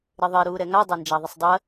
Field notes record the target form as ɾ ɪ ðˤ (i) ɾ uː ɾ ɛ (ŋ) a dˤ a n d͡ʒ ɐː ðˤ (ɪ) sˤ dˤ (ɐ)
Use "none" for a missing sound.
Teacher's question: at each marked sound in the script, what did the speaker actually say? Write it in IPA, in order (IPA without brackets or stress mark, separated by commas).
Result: i, ŋ, ə, ɐ